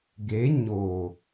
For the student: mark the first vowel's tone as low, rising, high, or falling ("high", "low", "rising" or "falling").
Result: rising